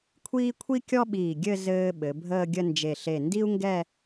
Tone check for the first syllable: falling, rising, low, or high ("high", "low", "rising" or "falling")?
high